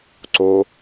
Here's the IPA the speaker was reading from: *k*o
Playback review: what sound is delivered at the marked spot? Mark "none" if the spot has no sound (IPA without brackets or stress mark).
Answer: ǀ